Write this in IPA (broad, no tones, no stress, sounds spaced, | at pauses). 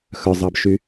x œ zˤ ɑ b ʃ y